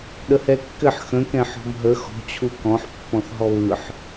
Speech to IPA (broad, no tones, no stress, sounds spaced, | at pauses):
ɗ ə h ɛ kː ɘ ħ x ə̃ k ɛ̃ ħ ɔ̤ m ɦ ə x ɔ̤ t͡ɕʰ u k ɔ̃ ħ pː ɔ̃ θ ɦ ɔ β ɯ ħ